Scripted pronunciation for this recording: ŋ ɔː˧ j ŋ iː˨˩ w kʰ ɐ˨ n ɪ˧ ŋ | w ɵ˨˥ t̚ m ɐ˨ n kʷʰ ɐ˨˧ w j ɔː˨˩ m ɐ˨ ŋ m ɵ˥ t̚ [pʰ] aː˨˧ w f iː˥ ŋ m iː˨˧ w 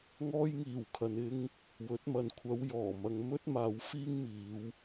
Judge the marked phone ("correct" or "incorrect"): incorrect